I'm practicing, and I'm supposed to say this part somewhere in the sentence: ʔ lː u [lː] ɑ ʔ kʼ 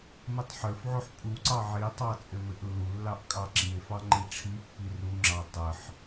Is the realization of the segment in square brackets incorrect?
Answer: no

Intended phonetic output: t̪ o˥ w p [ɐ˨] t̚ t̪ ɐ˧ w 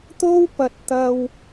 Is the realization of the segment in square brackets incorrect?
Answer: no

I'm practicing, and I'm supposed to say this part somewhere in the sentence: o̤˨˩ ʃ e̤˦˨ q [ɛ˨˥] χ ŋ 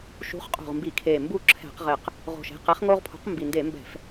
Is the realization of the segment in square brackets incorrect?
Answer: no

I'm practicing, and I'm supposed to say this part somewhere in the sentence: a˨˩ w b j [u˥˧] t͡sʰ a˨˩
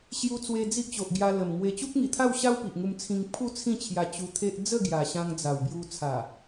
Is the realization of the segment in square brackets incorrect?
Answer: yes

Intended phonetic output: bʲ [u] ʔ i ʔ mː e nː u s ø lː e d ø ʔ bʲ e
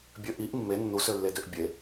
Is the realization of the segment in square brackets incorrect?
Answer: yes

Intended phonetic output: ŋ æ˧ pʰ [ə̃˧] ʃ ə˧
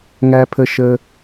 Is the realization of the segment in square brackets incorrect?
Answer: yes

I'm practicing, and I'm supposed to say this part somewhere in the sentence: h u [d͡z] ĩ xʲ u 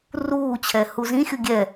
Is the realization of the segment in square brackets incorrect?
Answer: yes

